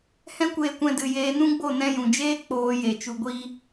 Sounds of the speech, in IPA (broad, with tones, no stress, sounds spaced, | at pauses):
h ɛ̃˦ kʷ eː˧ kʷ ɛ̃˧ d ɨ˨ j eː˧ n ũ˦ ɡ͡b o˦˨ n ɛ̃˧ j ũ˨ d͡ʒ eː˦ k͡p oː˧ j e˨ t͡ʃ u˧ ɡʷ iː˦